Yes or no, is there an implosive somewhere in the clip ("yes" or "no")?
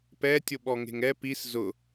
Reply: yes